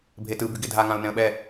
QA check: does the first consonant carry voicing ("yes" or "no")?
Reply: yes